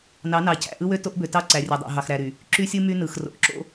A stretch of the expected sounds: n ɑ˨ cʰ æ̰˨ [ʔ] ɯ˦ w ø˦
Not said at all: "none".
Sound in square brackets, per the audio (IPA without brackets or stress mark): ʔ